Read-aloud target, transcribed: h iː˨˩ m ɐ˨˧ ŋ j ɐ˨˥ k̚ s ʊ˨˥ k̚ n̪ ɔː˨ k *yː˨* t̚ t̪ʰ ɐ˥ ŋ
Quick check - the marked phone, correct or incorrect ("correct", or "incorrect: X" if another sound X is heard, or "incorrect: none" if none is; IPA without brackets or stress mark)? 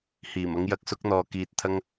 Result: incorrect: iː˨